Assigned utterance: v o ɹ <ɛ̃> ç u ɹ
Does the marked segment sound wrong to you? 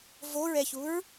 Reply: yes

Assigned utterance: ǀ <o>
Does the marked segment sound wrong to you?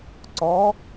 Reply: yes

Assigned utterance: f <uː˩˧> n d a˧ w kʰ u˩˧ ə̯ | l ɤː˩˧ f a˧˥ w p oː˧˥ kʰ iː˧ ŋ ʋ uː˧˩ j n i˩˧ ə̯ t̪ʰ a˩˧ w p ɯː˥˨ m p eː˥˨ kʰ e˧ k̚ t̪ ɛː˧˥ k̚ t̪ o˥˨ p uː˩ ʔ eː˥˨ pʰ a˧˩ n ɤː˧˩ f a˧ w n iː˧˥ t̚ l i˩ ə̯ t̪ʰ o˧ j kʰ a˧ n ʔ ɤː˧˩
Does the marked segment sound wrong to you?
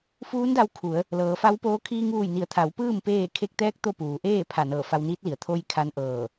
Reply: yes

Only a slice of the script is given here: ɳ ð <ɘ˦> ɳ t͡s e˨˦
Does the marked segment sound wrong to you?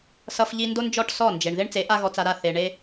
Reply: yes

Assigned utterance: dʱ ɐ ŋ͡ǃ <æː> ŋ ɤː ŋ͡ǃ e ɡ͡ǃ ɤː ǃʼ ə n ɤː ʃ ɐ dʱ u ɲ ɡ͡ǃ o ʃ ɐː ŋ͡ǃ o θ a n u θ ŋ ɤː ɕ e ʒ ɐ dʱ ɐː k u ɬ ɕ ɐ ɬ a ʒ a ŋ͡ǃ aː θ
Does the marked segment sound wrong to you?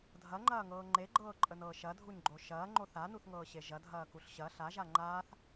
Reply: yes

